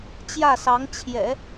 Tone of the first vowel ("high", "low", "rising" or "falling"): falling